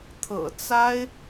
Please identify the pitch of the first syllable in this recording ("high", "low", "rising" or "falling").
low